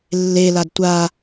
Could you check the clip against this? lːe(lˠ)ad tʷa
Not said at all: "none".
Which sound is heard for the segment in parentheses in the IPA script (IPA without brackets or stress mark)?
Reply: l